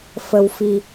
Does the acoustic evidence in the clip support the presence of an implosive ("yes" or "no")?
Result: no